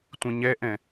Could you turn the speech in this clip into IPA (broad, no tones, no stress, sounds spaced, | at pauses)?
tʷ ĩ ɲ ɛ ʔ ɛ̃